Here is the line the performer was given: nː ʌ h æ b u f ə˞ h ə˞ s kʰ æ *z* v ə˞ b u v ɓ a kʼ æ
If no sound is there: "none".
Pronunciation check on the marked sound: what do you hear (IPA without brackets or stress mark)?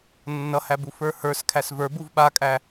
s